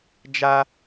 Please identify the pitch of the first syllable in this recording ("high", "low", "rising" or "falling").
high